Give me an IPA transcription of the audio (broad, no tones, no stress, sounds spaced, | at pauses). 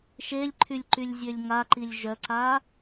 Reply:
ʃ e lʲ ǃʰ y lʲ ǃ y lʲ zʲ ø lʲ ŋ a ǃ i lʲ ʒ œ ǀ a